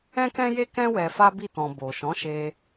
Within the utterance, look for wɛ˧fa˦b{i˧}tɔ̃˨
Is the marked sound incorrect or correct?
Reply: incorrect